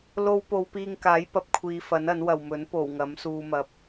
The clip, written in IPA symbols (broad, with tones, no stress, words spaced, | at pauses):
lo˧w po˨˧wpiː˧ŋkaː˨˥j pɐ˨˥p̚kʷʰiː˨˧fɐ˨˥nɐ˨˥n wɐ˨wmɵ˨˥n po˨˩w ŋɐ˨˥msuː˧mɐ˧p̚